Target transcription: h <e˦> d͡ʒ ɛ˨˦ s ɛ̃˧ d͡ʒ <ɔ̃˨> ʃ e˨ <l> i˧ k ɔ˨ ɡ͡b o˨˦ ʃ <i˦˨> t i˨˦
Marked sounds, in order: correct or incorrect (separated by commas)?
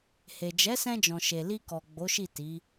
incorrect, correct, correct, correct